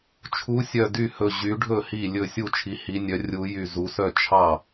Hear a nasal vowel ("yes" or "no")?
no